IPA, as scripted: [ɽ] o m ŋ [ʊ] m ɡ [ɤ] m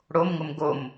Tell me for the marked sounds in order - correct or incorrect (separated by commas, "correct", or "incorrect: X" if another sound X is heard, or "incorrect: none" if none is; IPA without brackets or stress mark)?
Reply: correct, correct, incorrect: o